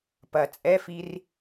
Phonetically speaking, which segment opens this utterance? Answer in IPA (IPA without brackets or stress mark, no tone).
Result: p